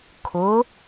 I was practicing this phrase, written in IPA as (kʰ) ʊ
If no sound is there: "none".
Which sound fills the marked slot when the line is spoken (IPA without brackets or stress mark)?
kʰ